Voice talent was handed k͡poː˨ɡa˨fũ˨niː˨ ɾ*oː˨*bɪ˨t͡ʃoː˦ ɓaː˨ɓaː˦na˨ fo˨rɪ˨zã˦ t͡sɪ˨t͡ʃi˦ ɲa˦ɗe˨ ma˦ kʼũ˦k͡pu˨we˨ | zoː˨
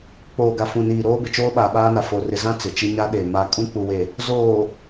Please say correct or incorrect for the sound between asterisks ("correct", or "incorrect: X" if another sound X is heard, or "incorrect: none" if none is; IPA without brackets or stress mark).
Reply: incorrect: oː˦